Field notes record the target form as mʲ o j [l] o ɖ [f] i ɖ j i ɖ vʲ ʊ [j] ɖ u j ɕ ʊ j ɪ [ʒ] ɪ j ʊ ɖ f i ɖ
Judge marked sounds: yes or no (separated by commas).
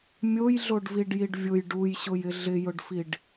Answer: no, no, yes, no